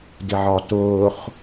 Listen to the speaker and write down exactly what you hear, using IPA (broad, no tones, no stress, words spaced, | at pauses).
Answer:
dɪʕɒtʊːχ